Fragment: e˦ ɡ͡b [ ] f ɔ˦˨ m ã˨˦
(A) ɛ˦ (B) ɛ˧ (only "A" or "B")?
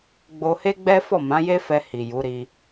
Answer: A